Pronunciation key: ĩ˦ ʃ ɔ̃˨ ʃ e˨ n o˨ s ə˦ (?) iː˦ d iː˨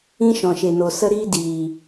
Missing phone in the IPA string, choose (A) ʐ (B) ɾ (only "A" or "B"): B